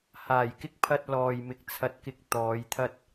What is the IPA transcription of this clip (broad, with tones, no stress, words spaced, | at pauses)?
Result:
haː˨˩jkɪ˥k̚pʰɐ˧t̚ lɔː˨j mɪ˨k̚t͡sʰɐ˧t̚kɪ˧k̚ t̪ɔː˨˧jt̪ʰɐ˥t̚